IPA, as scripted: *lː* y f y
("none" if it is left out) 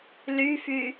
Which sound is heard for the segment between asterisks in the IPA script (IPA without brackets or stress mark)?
l